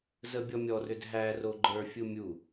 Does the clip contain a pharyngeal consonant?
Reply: no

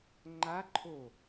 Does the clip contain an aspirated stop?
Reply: yes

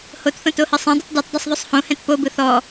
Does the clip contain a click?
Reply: no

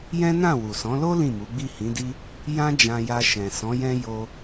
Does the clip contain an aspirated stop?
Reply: no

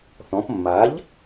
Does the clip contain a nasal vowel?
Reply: yes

